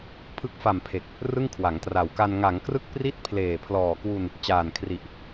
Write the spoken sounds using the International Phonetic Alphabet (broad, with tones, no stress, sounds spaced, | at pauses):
pʰ ɯ˦˥ k̚ f a˨˩ m pʰ e˨˩ k̚ | r ɯ˥˩ ŋ kʰ w a˩˦ ŋ t r a˨˩ w k a˧ n ŋ a˩˦ ŋ k r ɯ˥˩ k̚ p r i˥˩ t̚ pʰ l eː˨˩ pʰ l ɔː˨˩ k w u˧ n | t͡ɕ aː˨˩ n kʰ r i˨˩ ʔ